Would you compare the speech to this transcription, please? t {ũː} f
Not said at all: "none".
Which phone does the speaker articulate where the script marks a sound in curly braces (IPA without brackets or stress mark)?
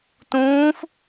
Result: ũː